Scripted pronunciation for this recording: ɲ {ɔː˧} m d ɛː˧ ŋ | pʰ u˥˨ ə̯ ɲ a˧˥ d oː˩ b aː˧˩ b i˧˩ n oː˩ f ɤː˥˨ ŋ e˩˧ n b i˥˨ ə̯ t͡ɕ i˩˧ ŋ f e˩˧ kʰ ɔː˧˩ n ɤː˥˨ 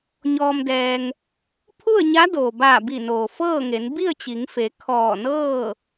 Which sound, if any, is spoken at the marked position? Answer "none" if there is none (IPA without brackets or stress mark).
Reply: ɔː˧